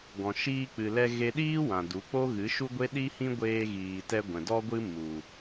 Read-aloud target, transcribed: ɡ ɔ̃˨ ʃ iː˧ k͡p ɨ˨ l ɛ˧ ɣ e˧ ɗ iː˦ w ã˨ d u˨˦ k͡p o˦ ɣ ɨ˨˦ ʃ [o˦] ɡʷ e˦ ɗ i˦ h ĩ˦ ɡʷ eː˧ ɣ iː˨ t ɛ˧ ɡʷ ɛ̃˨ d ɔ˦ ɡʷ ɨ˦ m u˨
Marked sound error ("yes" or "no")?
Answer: yes